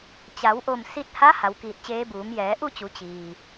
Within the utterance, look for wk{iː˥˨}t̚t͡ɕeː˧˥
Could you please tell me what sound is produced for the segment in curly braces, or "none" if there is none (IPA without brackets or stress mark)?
iː˧˩